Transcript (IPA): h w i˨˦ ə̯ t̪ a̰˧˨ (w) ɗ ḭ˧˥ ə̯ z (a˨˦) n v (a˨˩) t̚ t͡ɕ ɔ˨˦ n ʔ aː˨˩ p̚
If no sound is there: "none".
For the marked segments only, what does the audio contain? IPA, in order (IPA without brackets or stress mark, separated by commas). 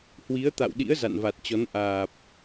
w, a̰˧˨, a˨˩